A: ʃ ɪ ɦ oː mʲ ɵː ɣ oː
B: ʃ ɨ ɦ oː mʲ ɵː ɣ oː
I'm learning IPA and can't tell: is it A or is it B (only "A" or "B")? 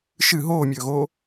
B